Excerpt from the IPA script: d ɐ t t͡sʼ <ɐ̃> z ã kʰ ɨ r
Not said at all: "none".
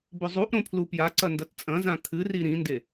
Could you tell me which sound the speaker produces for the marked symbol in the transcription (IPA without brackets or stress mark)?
ɐ̃